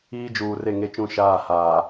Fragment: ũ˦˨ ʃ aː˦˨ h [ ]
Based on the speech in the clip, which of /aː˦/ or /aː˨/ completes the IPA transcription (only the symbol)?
aː˨